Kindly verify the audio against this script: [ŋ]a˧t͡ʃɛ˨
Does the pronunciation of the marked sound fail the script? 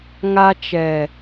no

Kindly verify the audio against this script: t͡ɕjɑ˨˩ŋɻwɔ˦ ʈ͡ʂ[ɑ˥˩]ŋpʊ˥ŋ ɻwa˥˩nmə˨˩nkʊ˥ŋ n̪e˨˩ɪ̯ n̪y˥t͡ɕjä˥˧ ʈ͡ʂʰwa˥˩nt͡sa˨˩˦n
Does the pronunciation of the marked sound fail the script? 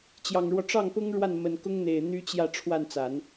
no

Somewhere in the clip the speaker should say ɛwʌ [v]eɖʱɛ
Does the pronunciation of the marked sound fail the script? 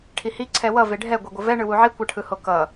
no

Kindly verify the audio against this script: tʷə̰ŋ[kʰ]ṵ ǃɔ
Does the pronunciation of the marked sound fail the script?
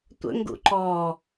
yes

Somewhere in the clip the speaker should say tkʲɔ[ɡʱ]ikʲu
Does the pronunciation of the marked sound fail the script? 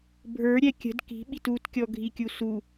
no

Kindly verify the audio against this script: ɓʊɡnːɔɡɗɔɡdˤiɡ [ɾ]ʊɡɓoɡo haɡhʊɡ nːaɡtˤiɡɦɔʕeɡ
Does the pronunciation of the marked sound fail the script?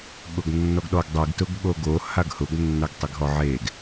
yes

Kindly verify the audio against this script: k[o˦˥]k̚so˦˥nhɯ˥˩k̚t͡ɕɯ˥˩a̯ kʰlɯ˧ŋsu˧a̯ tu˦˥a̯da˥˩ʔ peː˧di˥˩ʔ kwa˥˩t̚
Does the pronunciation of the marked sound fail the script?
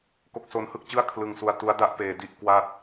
no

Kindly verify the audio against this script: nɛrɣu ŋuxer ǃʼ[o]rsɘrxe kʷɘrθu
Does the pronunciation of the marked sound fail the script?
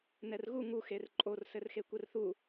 no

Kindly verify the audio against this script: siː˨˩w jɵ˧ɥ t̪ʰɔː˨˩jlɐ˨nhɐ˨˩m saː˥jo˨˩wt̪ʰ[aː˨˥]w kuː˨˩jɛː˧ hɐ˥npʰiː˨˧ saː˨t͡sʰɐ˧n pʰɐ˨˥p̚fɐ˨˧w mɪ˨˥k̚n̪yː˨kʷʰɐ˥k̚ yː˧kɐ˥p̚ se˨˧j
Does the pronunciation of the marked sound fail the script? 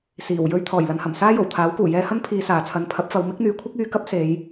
no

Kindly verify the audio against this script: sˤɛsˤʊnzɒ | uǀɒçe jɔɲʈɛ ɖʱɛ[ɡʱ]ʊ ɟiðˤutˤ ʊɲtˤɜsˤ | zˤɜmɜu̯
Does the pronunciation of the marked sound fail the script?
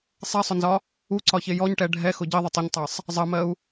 yes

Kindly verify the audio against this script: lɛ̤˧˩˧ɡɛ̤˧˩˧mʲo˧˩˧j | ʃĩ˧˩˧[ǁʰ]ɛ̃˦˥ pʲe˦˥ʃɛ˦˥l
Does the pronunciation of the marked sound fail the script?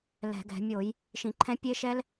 yes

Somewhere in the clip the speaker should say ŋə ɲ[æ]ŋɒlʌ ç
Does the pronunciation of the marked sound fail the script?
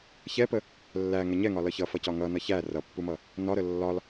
yes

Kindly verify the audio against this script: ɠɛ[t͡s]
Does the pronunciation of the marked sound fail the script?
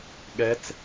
no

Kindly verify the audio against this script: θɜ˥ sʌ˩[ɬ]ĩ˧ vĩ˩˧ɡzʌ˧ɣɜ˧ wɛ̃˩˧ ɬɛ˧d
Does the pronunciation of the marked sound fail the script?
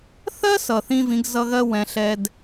yes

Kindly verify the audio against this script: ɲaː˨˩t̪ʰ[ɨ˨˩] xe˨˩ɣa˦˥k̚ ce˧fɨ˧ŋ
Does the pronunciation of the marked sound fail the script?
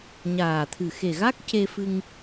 no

